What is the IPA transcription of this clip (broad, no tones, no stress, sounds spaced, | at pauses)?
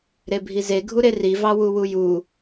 ɾ e bʱ i z e ɡʱ u ɾ e r i v ɑ w u w u j u